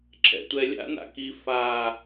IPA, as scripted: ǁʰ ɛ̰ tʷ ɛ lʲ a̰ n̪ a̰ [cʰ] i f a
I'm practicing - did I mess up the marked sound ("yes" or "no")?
yes